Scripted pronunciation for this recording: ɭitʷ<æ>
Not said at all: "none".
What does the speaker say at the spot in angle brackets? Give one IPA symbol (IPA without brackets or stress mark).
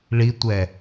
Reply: ɛ